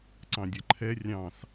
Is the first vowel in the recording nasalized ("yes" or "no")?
yes